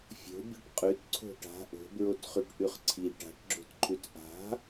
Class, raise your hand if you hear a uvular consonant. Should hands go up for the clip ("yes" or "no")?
yes